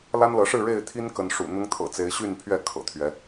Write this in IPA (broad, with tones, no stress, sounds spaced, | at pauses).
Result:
l a˦ n l ɤ˨˦ ʂ ɻ̩˥˨ ɻ e˥˨ ɪ̯ t̪ʰ i˦ n k ə˨˦ n ʂ ṵ˨˩ n̪ ʊ˦ ŋ t̪ʰ ɤ̰˨˩ t͡s e˨˦ ɪ̯ ɕ y˥˨ n pʰ ɥ ɛ˥˨ kʰ ɤ̰˨˩ t̪ʰ ɥ ɛ˨˦